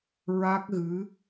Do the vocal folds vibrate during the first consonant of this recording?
yes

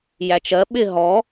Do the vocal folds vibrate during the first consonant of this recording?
yes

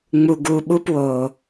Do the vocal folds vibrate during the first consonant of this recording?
yes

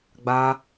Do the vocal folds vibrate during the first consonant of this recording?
yes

